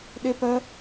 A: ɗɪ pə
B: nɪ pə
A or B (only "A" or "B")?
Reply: A